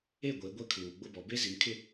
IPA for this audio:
e˦˨ ɡʷ e˨˦ ɡʷ ɛ˦ kʰ uː˨ ɡ͡b ʊ˦ b ɔ˨ b e˦ z i˨ m kʰ ɪ˦˨

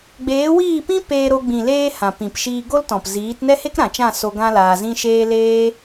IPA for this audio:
ɡ͡b eː˨˦ w iː˦˨ p ĩ˦ p eː˧ ɾ o˧ ɡ͡b ĩ˨ l eː˧ h ã˨ p ĩ˨ p ʃ iː˧ ɡ o˦ l t ɔ̃˨ p z iː˨˦ t n ɛ˦ h e˦ k ɾ ã˨ t͡ʃ ã˦˨ s o˧ ɡ ã˦ l aː˧ z ĩ˦ ʃ eː˦ l eː˦

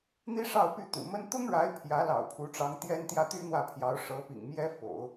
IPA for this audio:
n̪ i˥ ʂ ɑ˥˧ ʊ̯ p y˥˩ t̪ ṵ˨˩ m ə˥ n t̪ ʊ˥ ŋ ɻ a˧˥ ɪ̯ pʰ j ä˧˥ l ɑ̰˨˩ ʊ̯ pʰ u˧˥ ʈ͡ʂ ɑ˧˥ ŋ t̪ j ɛ˥ n t̪ j ä˥˩ t̪ y˥ n̪ w ä˥˩ pʰ j ɑ˧˥ ʊ̯ ʂ ɤ˧˥ p ḭ˨˩ ŋ m j ɛ˥ f o̰˨˩˦ ʊ̯

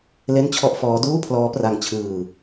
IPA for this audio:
l e˥˩ n t͡ɕʰ ɔ˥˩ ʔ f ɔː˦˥ d uː˥˩ pʰ l ɔː˦˥ p r a˧ ŋ t͡ɕʰ ɯː˧

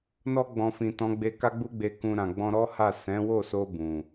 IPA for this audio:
n ɔ˧ ɡ͡b ɔ̃˨ f ĩ˨ t ɔ̃˨˦ ɡ͡b e˧ k a˦ ɡ͡b u˦ ɡ͡b e˧ k ũ˧ ɾ ã˨ ɡ͡b ɔ̃˧ ɾ ɔ˦ h a˦˨ s ɛ̃˨˦ w o˦˨ s o˧ b ũ˨

